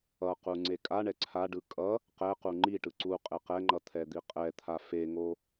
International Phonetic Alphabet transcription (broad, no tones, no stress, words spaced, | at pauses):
ʌqu ŋ͡ǀekʼaɳɛ ǀʰaɖɯ kʼʌ | qɛqu ŋ͡ǃiʈɯ ǀu qʼeqɛŋ͡ǃʌ t̪ʰɛd̪iqʼɛt̪ʰa feŋo